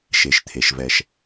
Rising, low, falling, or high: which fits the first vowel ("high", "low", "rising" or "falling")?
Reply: low